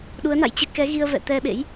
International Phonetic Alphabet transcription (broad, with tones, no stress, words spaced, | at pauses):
ɗu˨˦ə̯na̰˧˨jt͡ɕɨ˨˦ kɛ˨˦ɣi˧ə̯ vɛ̰˧˨t̪ɛ˧ɓḛ˧˥j